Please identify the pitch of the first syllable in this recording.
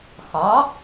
rising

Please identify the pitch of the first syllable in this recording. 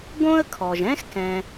high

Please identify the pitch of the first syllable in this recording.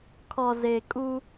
low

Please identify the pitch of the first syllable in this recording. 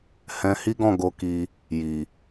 high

